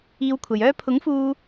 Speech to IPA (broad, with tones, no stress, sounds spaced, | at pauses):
iː˧ w kʷʰ ɐ˨ j œː˥ pʰ ʊ˨˥ ŋ f uː˧